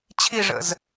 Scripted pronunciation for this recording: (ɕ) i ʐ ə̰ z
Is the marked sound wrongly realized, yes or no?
yes